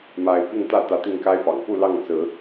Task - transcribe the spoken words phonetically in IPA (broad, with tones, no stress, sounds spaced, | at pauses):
m a˨˦ ɪ̯ p i˥˨ ŋ t̪ ä˥˨ t̪ ä˨˦ t̪ i˥˨ ŋ k a˦ ɪ̯ p ɑ̰˨˩ ŋ p u˥˨ l ɑ˥˨ ŋ t͡s ɹ̩˨˦